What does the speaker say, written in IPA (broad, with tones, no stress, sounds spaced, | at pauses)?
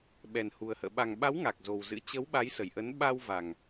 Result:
ɓ ɛ˨˩ n h u˨˩ ə̯ h ə̰ː˧˨ ɓ a˨˩ ŋ ɓ a˨˦ w ŋ a˨˩ k̚ z o˨˩ w z ɨ̰˧˥ t͡ɕ ə˨˦ w ɓ a˨˦ j s ə˨˩ j ʔ ə˨˦ n ɓ a˧ w v a˨˩ ŋ